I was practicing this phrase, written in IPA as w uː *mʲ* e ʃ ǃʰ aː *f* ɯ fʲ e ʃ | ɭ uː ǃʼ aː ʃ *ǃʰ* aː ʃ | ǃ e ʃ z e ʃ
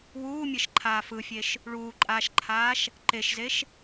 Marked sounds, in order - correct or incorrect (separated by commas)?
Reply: correct, correct, correct